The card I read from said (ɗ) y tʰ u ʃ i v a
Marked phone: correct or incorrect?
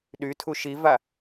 correct